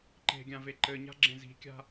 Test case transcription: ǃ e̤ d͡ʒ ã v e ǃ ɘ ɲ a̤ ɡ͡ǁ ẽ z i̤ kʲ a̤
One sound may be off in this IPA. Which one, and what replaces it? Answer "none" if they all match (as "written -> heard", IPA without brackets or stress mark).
d͡ʒ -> ɡʲ